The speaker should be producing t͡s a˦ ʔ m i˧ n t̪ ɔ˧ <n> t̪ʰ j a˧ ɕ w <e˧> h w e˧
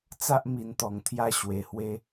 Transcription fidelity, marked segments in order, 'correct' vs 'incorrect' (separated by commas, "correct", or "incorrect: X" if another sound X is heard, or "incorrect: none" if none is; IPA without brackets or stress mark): incorrect: ŋ, incorrect: e˨˩